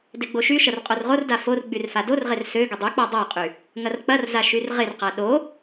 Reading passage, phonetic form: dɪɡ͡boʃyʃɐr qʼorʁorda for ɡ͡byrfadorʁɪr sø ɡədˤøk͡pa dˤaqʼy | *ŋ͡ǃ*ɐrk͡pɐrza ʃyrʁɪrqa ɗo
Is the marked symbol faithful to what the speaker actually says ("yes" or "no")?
no